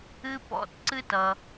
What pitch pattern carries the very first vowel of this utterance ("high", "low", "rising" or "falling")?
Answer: high